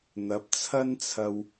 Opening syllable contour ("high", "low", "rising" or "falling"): rising